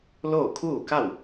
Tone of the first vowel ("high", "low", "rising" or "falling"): falling